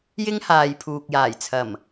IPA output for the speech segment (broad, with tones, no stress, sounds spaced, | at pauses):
j ɪ˥ ŋ h aː˨ j pʰ uː˨ k̚ j aː˨˩ j t͡sʰ ɐ˨˩ m